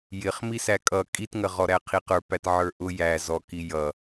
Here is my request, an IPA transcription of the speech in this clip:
jɪχmisæ kʼʌ kʼitŋəʁɔɾæ qʰiqə˞ pætʕə˞ʔʊ jæ zɔki jʌ

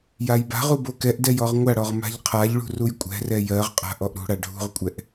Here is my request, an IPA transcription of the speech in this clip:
jajba̤ʁu bokɛʔdɛj ɔʁŋʷaɽɔʁ ma̤ʎqʰaʎɭṳ rujkʷʼɛ̤rɛ jɜʁqʼa̤ ʔɔʔɾṳɽa ɖʱṳʁkʷʼɛʔ

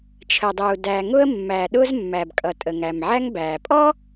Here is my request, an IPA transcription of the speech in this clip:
t͡ʃʰə˩dˤuː˩ dæː˩ŋʊ˥ə̯ mːæː˩ ɗʊː˥zmːæ˩bkʼʌ˩ tʼə˩ŋæ˩mʕæ˥ŋbæː˩ pʼɔ˥

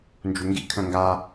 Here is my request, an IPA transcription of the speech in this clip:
nd͡ʒuŋɡḭ kʰœ̃ŋɡa

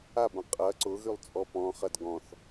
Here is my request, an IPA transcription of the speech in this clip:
abɐ̃ qʼɐ ǀʊɣylˠ t͡sʼɔpɔ̃χɐd ɡɔ̃θ

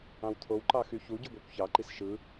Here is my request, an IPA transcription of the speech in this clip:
ɑ̃wt̪ʰow ǃɑxyçu ɟyɡʷækʷçɑ ǃisʃɯ

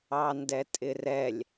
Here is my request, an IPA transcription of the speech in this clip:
ɑndɛtʼɪrɛlʲ

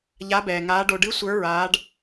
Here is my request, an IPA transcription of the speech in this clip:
ʎa˦˥bɛː˧ŋaː˦˥ ɖo˧ɖɨ˦˥ sʷə˞˦˥ ɹaː˦˥ɖ

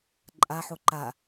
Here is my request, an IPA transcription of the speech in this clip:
ǃʼaħo ǃa

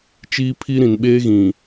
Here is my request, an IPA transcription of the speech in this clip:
t͡ʃiː˦pʰi˦ ɾĩ˨nɓeː˦ ɣĩ˨

